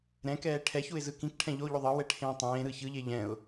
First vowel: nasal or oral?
nasal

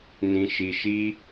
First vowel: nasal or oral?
nasal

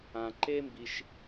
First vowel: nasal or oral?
nasal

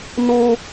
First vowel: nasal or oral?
nasal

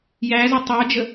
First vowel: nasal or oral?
oral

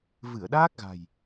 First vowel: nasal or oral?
oral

